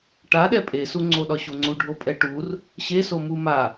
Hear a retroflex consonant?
yes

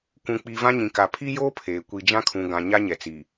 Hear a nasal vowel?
yes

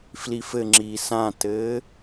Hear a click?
yes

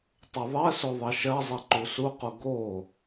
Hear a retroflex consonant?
no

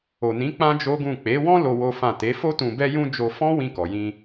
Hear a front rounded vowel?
no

